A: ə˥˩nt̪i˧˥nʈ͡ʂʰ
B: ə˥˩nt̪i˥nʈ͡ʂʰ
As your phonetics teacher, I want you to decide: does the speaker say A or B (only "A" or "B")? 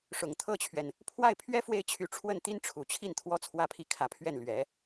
B